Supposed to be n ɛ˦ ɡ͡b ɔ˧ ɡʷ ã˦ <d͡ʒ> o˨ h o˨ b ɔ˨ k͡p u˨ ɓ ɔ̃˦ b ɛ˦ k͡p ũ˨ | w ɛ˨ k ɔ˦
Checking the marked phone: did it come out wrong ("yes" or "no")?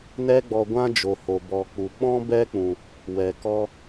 no